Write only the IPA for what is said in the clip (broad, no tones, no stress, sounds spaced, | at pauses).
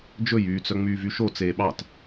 d͡ʒ ɵ j yː t͡s œ ŋ͡m yː v y ʃ o t͡s eː ɓ ɑ t